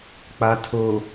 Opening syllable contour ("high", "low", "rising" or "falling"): low